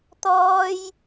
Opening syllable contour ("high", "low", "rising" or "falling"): high